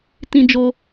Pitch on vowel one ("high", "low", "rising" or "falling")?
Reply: high